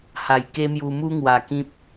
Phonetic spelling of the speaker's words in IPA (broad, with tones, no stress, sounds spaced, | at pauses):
h a˨˩ j k e˦ m j u˧ m u˦ ŋ w a˨˩ k ĩ˦ p̚